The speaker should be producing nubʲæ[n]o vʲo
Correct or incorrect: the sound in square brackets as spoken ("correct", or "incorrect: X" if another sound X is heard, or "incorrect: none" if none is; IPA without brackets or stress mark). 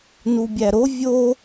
incorrect: ɾ